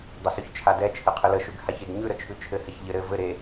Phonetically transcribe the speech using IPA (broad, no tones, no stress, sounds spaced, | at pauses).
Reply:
dˤ ə s ʉ ç t͡ʃʰ a d ɛ t͡ʃʰ ɘ qʰ ɘ l ə ʃ ʉ ɡ h a ç e ɡ ɲ ʉ ɾ ə t͡ʃʰ ʉ t͡ʃʰ ɘ h ɛ ç ʎ ɘ ɾ ɘ v ɘ ɾ e